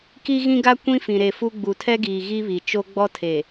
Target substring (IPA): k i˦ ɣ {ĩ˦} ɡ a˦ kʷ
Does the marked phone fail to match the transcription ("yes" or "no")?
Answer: no